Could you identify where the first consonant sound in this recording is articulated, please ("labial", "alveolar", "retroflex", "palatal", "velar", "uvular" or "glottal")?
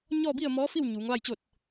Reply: palatal